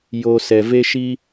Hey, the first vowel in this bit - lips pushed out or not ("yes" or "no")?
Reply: yes